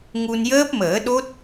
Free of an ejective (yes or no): yes